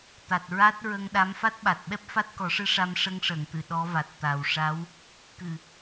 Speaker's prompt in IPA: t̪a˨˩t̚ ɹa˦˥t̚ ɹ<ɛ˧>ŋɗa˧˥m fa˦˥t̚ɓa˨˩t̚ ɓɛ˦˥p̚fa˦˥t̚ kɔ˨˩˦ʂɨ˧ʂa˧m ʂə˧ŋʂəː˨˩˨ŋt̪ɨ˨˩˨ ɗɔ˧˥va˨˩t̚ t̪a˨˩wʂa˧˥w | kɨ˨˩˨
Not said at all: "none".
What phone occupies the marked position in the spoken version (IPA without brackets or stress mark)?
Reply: ə˧